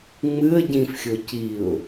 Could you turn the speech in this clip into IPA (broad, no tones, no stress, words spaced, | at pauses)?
ŋ͡mɨə̯ ɟĩfxʲo ciʊ̯